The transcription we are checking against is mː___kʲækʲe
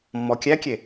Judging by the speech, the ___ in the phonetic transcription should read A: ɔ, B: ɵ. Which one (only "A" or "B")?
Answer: A